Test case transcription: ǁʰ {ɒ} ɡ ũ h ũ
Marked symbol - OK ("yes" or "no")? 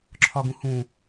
yes